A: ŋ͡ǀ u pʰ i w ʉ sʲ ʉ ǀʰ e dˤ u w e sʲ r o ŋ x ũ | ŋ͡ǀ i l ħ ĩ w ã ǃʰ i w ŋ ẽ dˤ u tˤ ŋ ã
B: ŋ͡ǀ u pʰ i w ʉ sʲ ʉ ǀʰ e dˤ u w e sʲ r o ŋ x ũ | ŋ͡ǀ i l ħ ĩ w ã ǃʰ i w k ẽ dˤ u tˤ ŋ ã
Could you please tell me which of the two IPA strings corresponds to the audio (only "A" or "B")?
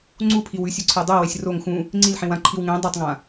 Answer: A